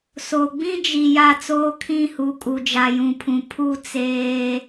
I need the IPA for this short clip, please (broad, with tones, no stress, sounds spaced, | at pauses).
s o˨ ɡ͡b ĩ˦ d͡ʒ i˨ j a˦˨ t͡s oː˦ kʰ ĩ˦˨ h u˨ kʼ u˨ d͡ʒ a˨ j ũ˨ pʰ ũ˨ pʰ u˦˨ t͡s eː˦